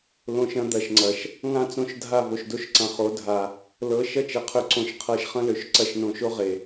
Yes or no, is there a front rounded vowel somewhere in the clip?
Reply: yes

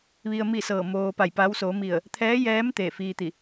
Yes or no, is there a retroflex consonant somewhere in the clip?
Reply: no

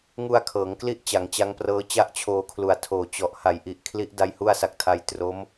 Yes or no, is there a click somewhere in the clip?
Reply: no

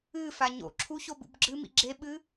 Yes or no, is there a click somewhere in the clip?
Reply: yes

